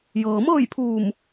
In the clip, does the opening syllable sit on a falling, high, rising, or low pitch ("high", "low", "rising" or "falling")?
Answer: low